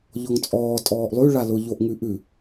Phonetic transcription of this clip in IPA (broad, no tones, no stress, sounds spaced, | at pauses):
ʎ ɔ ŋ t͡sʼ ɔː tʼ ɔː ʔ lˠ ʉ ɭ a l ʊ ʎ o ʔ ŋ ʉ ʔ ʉ